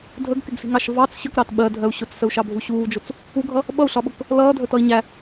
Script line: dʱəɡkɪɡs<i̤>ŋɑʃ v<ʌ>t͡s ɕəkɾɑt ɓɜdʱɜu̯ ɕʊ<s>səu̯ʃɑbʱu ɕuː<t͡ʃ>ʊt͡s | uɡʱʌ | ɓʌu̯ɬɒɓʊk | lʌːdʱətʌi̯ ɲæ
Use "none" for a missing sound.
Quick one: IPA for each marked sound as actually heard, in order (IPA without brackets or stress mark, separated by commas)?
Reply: i̤, ɑ, t͡s, d͡ʒ